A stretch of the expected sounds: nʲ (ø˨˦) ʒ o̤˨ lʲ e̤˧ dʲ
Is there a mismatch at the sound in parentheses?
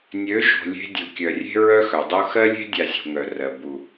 no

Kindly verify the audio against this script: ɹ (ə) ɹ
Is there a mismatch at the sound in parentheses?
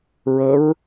no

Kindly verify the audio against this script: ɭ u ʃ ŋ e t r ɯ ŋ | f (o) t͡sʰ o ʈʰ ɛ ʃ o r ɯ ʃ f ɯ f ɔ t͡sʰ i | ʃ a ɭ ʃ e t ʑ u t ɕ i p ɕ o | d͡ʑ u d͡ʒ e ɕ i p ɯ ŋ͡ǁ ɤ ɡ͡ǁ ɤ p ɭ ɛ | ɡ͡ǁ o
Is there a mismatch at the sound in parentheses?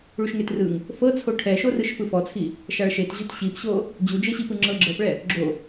yes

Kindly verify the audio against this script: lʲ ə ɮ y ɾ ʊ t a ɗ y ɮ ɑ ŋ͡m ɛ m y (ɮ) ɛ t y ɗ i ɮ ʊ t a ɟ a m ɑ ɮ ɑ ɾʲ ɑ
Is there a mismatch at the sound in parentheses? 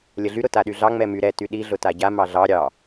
yes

